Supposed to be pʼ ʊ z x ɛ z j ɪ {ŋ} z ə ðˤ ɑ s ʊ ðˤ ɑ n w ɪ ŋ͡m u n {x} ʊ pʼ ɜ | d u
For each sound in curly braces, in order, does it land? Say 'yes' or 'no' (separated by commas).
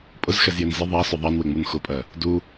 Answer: no, yes